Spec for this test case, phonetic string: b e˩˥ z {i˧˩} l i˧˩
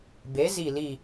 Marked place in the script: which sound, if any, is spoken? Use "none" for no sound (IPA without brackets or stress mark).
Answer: i˧˩